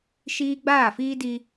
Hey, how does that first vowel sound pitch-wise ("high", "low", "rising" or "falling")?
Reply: high